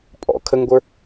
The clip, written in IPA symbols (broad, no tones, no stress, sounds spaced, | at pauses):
pʼ ɔ̰ kʰ ə ŋ ɡʷ ə˞